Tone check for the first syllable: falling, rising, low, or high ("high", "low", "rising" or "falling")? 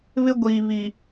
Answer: high